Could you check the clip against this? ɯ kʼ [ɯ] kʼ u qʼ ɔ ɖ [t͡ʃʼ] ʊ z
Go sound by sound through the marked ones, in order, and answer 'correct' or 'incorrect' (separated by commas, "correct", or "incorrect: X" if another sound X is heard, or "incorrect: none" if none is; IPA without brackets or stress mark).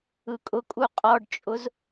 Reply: incorrect: ʊ, correct